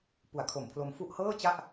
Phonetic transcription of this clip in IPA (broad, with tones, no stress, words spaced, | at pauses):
pu˨˩a̯kʰo˨˩mpʰlo˧mfu˥˩ʔ hɤː˥˩t͡ɕa˥˩ʔ